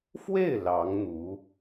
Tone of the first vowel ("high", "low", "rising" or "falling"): falling